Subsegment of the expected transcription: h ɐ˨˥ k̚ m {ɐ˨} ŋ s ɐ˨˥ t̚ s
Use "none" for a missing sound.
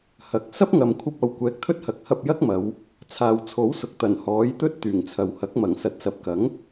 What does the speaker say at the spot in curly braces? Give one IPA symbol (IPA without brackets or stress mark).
ɐ˨˩